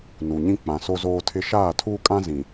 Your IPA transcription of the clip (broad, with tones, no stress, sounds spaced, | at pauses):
n u˨ ɲ ĩ˦ k͡p ã˨ s o˦ z oː˦ tʰ ɪ˦ ʃ aː˦˨ tʰ uː˦ kʼ ã˦ z ĩ˨